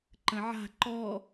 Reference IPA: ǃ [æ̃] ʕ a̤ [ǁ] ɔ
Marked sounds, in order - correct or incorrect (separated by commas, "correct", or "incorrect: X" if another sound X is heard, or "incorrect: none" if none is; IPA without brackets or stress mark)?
incorrect: ə̃, incorrect: ǃ